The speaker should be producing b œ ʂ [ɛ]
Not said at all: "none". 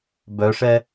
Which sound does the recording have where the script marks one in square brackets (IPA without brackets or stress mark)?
ɛ